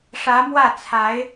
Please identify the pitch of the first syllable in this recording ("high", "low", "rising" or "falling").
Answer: rising